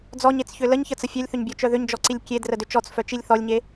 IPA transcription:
d͡zɔɲet͡sçʏ ləɲçət͡sə fʲœlʲθʏɲbʲɔt͡ʃœ ðʏɲd͡ʒɔǀilʲ kʲedrədʏ t͡ʃɔt͡sfœt͡ʃilʲ θɔlʲɲe

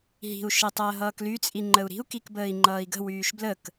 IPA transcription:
ɦi̤u̯ ʃitˤəːɦʌːkly t͡sʼiŋ͡ǃəu̯ɾi̤u̯ kikbəːi̯ŋ͡ǃʌːi̯ɡə̤ wyːʃblək

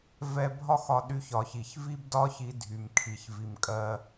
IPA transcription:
vɛ˧bʱɒ˥x ɒ˧ɗy˧ç ɒ˩çi˩ç vi˥bdɒ˥çi˧dʱy˩m kʰi˩ç vi˩mkʼɜ˧

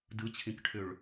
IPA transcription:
dɯt͡ɕʰĩkʈʰʏɭ

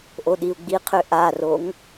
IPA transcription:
ʔoɗiu̯ɡ͡biqʰø ʔaroŋ

